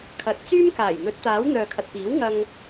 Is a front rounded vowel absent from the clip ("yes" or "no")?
no